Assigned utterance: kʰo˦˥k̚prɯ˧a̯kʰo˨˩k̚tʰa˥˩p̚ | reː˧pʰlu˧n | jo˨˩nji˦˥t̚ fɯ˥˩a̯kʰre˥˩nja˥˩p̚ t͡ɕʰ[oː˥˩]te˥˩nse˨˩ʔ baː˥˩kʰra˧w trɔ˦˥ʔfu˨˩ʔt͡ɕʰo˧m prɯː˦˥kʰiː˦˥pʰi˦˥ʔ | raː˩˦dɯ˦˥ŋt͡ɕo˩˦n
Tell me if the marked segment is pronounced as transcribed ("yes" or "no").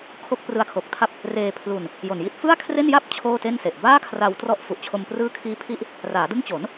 yes